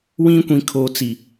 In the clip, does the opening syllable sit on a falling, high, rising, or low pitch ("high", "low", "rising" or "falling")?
high